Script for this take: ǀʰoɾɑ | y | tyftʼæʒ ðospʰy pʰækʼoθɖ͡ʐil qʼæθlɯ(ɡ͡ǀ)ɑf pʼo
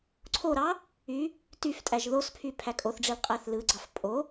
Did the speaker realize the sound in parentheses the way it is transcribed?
yes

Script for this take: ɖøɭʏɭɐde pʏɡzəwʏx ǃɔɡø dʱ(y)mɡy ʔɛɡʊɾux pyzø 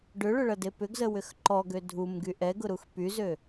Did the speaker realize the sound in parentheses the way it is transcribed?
no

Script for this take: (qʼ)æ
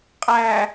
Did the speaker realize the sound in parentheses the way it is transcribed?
yes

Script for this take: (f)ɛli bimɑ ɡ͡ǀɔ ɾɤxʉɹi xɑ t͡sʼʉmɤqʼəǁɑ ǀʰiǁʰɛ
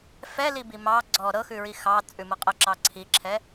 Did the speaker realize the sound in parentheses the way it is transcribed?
yes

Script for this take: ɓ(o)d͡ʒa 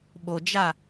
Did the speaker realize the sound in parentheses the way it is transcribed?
yes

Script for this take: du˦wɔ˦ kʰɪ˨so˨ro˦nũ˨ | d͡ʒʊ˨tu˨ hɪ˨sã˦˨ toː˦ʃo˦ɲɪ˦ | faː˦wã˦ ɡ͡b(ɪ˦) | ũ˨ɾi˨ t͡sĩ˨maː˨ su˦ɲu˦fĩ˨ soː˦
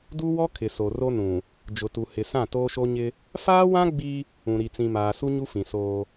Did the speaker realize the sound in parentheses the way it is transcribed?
no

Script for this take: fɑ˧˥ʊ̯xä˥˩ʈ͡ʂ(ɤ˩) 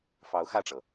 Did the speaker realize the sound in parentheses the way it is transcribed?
yes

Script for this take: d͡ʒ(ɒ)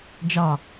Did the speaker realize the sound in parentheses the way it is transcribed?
no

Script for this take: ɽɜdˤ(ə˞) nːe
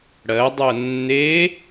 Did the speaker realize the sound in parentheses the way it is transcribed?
no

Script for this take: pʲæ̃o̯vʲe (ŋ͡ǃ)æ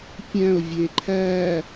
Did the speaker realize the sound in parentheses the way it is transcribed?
no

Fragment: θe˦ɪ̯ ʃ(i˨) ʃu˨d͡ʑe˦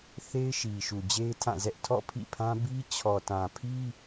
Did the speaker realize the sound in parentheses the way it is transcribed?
yes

